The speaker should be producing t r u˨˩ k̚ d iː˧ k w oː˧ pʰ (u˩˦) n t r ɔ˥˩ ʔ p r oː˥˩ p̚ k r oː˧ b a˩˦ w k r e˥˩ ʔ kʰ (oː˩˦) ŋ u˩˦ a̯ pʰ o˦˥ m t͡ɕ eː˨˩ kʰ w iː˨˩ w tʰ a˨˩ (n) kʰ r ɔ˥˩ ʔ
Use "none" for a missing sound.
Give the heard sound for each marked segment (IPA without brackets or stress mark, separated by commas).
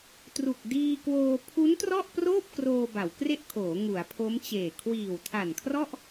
u˦˥, oː˩˦, n